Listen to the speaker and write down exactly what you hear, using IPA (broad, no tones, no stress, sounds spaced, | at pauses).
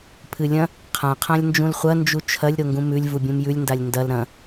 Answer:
pʰ ɨ lʲ ɐ̃ | qʰ ã qʰ ã lʲ n d͡ʒ ũ l χʷ ɐ n d͡ʒ u t͡ʃʰ ɐ lʲ ɾ o ŋ ɡ ũ m ʉ lʲ v u bʲ ũ m j ʉ lʲ n d a lʲ n d ɐ l ɾ ɐ̃